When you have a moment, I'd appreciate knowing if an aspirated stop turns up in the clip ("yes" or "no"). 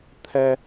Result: yes